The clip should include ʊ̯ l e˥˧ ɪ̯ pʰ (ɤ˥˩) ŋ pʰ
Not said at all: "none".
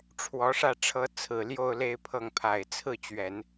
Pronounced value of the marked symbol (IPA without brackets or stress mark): ɤ˥˩